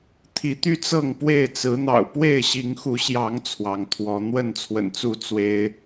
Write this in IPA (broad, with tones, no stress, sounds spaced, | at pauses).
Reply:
t̪ʰ i˨˦ t̪ y˦ t͡s ɤ˥˨ ŋ p w e˥˨ ɪ̯ t͡s ɹ̩˨˦ n̪ ɑ̰˨˩ ʊ̯ p w e˥˨ ɪ̯ ɕ i˨˦ ŋ x u˨˦ ɕ j ɑ˨˦ ŋ t͡sʰ w ɑ˨˦ ŋ t̪ʰ w ɔ˨˦ n̪ w ə˥˨ n t͡sʰ w ə̰˨˩ n t͡s u˥˨ t͡s w e˦ ɪ̯